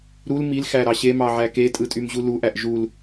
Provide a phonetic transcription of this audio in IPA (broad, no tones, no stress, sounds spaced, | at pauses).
ɾ u l m i l x æ ɾ ɑ ɕ e m ɑ ʕ æ k e tʼ ɯ tʼ y m ʑ u l u ʔ æ ʔ ʒ u l